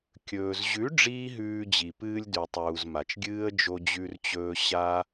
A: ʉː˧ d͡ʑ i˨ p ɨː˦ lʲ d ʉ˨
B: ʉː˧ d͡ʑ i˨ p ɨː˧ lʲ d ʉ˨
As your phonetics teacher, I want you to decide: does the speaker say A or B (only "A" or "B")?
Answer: B